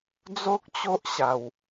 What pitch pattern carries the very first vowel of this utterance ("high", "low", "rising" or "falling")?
high